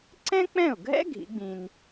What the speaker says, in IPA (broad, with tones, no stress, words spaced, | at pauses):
ǀɛ̃˥k͡pɛ̃˥˩ʊ̯ɡʱɛ̰˥ ɡʱḭ˩˥ɡ͡bĩ˧n